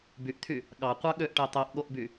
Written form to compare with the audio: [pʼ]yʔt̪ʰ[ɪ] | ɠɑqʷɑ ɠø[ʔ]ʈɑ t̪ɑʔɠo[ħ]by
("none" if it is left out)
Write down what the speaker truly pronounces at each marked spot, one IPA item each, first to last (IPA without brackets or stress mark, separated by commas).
b, y, ʔ, ʔ